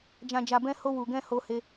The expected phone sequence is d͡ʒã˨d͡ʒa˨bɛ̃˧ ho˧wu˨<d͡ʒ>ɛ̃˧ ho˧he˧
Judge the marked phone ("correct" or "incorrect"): incorrect